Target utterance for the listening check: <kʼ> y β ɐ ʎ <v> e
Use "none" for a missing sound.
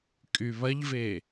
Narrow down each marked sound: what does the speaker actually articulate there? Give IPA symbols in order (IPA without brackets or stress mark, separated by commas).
kʼ, v